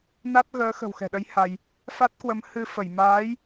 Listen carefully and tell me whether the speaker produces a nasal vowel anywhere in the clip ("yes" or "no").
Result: no